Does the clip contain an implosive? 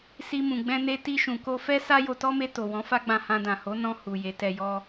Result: no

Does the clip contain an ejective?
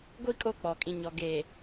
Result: yes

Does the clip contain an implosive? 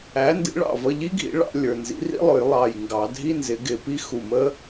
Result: no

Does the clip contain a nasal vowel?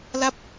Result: no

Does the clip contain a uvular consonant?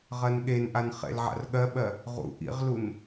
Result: yes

